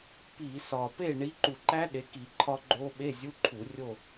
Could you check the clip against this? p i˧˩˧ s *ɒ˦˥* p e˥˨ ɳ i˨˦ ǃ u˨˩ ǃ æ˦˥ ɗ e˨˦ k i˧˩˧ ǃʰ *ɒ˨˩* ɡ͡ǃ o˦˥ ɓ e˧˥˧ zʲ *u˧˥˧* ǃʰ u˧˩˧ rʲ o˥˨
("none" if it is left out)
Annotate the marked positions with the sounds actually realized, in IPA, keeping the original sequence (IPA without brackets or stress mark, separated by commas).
ɒ˨˩, ɒ˦˥, u˧˥˧